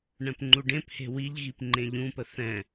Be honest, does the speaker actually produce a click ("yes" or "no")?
yes